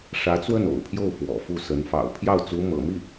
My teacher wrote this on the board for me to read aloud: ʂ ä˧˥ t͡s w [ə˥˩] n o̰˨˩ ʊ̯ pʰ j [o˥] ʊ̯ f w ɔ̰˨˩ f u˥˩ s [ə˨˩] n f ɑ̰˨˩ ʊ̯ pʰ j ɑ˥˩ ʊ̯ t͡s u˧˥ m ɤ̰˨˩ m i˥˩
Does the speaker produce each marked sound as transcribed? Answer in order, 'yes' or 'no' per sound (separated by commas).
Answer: yes, no, no